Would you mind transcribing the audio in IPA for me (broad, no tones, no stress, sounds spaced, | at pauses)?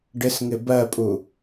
ɖ ɪ s ŋ ɪ b ɜ pʼ u